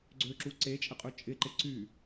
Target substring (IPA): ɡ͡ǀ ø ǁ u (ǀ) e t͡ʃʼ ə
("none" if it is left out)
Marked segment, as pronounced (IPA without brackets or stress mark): ǀ